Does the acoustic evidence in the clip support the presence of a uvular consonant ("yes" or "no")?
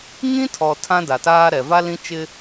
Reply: no